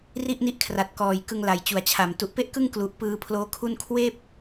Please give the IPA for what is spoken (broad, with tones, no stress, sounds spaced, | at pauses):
r i˥˩ ʔ n i˦˥ ʔ kʰ r a˨˩ t̚ k ɔː˨˩ j k ɯ˧ ŋ l a˨˩ j t͡ɕ u˨˩ a̯ t͡ɕʰ a˨˩ m t u˨˩ ʔ p e˥˩ ʔ k ɯ˥˩ ŋ k l u˨˩ ʔ p ɯː˧ pʰ l oː˦˥ kʰ u˥˩ n kʰ w eː˥˩ p̚